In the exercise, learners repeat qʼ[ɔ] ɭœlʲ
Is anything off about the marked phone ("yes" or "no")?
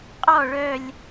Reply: no